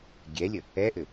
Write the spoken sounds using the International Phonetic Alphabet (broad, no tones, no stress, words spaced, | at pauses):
ɡʲɛlʲə | ɛʔɘ